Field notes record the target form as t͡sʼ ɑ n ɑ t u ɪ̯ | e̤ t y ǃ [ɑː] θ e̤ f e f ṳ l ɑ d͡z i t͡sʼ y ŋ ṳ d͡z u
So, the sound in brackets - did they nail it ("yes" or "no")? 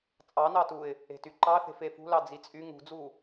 no